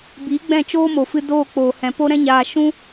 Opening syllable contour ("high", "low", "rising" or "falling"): rising